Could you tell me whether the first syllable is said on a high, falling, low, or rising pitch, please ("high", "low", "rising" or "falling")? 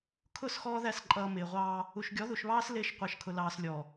falling